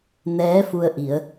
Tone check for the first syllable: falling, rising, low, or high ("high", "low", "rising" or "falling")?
rising